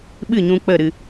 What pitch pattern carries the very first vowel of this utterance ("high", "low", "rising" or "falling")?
falling